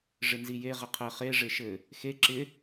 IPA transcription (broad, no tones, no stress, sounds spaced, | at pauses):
ʐ ɪ n z i j e ʁ ɪ qʰ ɘ χ e ʐ e ʃ ɘ | x e ǁ ɪ